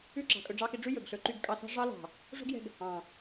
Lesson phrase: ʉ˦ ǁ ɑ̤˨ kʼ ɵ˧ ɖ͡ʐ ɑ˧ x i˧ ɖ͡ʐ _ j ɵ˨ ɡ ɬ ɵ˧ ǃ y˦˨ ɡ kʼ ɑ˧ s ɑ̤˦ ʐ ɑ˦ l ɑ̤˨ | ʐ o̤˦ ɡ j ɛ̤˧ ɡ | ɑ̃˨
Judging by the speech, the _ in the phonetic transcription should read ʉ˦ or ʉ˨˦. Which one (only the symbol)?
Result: ʉ˦